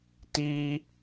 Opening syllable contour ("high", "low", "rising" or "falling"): high